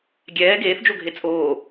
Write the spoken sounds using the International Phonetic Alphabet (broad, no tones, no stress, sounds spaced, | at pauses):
ɡʲ ɛː ɡ eː θ d͡ʒ o ɡʱ e t͡sʼ oː